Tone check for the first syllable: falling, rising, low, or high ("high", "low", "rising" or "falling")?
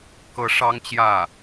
rising